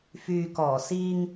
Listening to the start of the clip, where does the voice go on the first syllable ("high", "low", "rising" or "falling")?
low